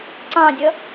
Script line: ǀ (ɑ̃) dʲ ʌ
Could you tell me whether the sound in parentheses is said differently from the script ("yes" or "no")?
no